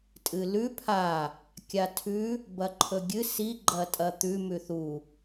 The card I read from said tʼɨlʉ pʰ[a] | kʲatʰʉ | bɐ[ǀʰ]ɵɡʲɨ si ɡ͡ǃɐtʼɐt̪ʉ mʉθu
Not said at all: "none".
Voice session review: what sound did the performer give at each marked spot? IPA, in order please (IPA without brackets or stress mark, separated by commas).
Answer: a, ǃʰ